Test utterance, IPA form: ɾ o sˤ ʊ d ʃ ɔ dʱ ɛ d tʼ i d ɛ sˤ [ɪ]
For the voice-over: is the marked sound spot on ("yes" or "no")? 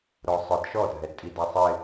yes